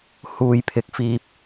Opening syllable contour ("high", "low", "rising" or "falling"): low